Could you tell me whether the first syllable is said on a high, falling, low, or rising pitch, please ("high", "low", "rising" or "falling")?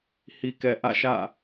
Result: low